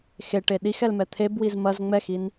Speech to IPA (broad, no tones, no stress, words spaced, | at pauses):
xeʈe ɗixɛlmɛ t̪ʰebwiz mɐz ŋ͡mɛxin